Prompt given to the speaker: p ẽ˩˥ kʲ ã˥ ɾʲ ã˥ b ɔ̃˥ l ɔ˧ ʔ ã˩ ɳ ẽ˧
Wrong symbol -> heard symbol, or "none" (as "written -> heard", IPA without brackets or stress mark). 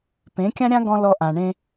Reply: b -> ɡ